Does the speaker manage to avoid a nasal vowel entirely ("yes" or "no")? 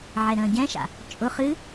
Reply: no